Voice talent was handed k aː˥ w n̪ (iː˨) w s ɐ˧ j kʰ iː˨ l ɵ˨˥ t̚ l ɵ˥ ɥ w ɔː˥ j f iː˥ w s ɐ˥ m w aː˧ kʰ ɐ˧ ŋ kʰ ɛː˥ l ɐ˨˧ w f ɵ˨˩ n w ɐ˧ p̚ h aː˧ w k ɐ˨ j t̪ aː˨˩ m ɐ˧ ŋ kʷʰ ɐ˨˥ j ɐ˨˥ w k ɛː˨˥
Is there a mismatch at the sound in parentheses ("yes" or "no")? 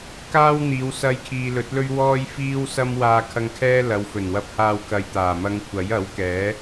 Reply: yes